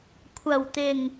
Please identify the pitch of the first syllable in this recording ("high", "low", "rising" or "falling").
low